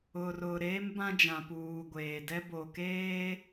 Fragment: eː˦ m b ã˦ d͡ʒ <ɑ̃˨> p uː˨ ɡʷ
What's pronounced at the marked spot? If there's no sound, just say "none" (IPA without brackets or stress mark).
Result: ã˨